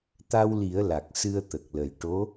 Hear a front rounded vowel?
no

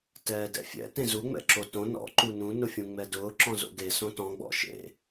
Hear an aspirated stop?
no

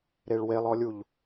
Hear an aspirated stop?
no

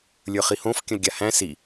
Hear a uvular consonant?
yes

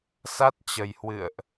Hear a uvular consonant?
no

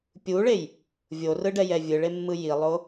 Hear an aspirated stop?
no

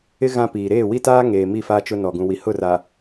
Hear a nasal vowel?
yes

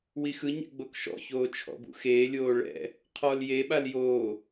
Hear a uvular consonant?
yes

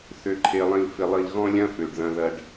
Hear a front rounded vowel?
yes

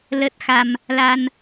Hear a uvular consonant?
no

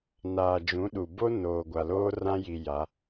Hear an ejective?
no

